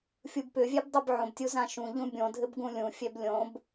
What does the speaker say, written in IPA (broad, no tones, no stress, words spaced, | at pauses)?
fʲubpʏvʲɛb dˤɯbʕõbtʲu zãʃũʎũ bʲõdʱɘb ɡũlʲũfʲɛb lʲõb